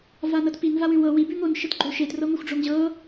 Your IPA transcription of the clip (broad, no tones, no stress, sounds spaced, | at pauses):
v a n ɤ t p i n v a w ʉ w ɤ w i b ʉ ŋ o n ʃ ə t ɡ͡ǃ o ʃ e t r ɤ ŋʷ e xʷ ɖ͡ʐ o ŋ ʑ ɤ